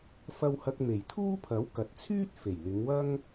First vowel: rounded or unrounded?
unrounded